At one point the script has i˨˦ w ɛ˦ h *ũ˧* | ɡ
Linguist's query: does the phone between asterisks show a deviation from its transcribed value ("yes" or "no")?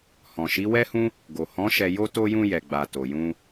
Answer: yes